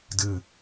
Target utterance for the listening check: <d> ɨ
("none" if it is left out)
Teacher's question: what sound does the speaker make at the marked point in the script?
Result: d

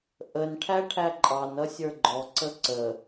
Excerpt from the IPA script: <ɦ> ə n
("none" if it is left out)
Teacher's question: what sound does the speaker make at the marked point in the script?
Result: ʔ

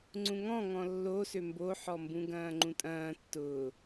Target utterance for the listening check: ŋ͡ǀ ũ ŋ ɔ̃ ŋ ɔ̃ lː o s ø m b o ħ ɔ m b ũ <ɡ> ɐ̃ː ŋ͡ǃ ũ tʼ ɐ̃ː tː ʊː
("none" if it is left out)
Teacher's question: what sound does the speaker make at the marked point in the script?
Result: ɡ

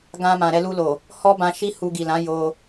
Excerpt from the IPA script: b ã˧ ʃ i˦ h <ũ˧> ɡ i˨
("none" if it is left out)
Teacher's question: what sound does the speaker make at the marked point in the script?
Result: u˧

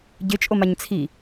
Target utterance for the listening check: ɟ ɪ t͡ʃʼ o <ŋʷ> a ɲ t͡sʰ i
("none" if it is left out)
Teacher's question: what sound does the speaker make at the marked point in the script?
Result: m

